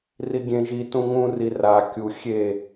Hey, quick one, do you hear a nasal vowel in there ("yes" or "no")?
yes